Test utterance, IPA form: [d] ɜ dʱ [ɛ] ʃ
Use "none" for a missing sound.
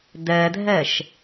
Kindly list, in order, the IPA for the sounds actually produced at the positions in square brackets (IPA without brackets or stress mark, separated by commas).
d, ɜ